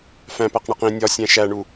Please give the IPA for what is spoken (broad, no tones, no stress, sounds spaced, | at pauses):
f æ̃ p æ q ɳ e q ĩ nʲ ɒ sʲ æ̃ ʃ æ ɳ u